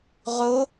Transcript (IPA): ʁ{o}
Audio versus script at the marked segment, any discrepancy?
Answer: no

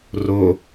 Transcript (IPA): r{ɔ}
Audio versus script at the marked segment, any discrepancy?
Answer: yes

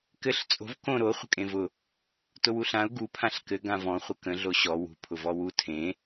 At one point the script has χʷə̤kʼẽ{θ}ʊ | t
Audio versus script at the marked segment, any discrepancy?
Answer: yes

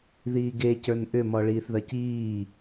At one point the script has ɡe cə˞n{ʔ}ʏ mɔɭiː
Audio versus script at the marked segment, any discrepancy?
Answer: no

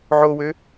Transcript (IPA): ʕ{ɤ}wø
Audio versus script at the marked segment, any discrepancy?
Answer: yes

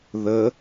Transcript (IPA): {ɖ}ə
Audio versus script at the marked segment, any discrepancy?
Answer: yes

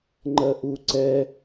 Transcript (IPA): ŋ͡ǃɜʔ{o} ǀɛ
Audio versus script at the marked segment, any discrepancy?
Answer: yes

